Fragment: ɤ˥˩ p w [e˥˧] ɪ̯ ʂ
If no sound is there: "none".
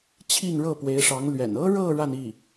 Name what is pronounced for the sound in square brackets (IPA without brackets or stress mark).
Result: e˧˥